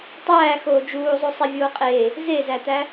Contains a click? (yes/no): no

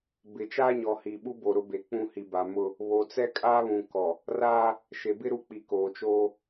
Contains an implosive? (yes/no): yes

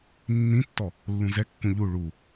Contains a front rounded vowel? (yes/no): no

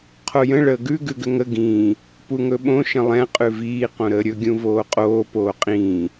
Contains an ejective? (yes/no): yes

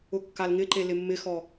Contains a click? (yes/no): yes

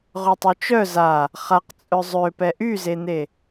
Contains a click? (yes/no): no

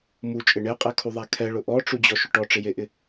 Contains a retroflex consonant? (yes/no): yes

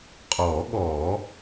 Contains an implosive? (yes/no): yes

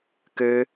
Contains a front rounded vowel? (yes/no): yes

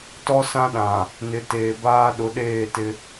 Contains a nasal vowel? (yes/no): yes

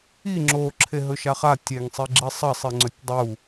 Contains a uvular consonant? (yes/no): yes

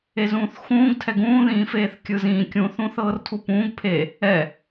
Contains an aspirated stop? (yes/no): yes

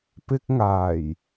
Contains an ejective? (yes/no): no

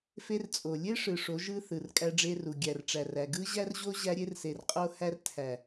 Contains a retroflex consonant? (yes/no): yes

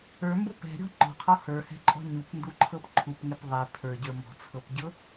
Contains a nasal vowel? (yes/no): no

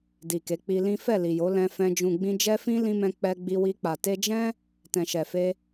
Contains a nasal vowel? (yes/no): yes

